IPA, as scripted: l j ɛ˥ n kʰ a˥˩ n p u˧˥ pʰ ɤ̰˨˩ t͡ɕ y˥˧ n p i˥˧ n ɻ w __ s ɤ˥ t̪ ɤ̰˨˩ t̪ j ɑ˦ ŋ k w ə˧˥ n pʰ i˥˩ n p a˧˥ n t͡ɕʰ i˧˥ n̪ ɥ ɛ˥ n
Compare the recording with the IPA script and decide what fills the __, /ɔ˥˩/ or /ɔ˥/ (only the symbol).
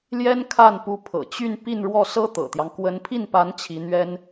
ɔ˥˩